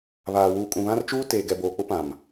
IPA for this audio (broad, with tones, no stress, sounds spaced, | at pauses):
β aː˨ w uː˨ kʼ ũ˨ β ã˦ r t͡ʃ uː˦ t eː˨ ɡ ɛ˨ b oː˨ k͡p ʊ˦ p ã˨ m